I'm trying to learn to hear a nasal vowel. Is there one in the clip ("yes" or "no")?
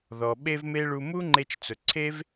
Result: no